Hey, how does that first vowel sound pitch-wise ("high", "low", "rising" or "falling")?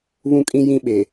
high